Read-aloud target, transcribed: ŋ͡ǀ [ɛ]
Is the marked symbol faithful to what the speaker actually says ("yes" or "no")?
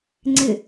no